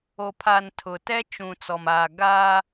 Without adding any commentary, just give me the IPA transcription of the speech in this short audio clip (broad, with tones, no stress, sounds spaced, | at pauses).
o˨ pʰ a˨ n tʰ ʊ˨ t ɛ˦ t͡ʃ ũ˨ t͡s ɔ˨ m aː˨ ɡ aː˦